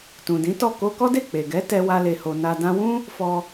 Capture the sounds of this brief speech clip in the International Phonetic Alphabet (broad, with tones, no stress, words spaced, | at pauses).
tũ˨dĩ˨˦tɔ˦˨ ko˧kɔ˦de˦˨ k͡pe˨ɡɛ˨˦ tɛ˦wa˦le˧ho˧ na˧ dã˦ wũ˦ | fɔ˧